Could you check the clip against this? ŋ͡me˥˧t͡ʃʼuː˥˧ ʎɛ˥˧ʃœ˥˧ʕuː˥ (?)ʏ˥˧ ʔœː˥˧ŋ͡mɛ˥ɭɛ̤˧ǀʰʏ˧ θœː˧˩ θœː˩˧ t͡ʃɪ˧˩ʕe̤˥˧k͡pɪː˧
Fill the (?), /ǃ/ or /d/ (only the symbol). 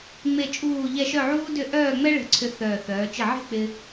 d